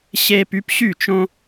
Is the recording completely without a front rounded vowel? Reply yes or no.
no